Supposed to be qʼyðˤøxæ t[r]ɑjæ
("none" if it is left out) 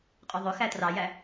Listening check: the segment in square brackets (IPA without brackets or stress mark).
r